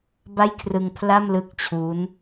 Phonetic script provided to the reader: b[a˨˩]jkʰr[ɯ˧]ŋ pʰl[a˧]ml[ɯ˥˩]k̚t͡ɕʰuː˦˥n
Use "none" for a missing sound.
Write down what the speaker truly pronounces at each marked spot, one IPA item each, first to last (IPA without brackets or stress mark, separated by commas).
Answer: a˥˩, ɯ˧, a˥˩, ɯ˦˥